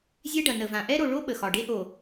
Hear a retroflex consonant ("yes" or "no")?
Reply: yes